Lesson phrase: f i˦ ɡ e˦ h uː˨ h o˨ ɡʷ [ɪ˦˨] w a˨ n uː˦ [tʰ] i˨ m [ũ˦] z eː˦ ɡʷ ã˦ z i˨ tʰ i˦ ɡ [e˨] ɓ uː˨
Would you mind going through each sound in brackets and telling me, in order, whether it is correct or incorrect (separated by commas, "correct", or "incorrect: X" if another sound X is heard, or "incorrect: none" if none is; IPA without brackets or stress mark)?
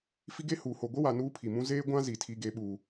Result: incorrect: ɪ˦, incorrect: pʰ, correct, incorrect: e˦